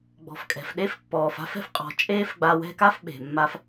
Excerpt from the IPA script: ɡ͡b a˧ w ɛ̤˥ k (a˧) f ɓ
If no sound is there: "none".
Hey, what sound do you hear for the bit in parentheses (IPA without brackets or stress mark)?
a˥